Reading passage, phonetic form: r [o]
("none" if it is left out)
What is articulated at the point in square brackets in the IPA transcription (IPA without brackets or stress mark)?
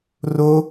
o